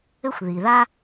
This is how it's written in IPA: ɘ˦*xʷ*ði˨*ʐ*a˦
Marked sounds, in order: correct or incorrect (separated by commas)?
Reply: correct, incorrect